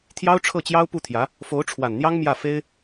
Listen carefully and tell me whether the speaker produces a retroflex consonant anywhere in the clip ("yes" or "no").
yes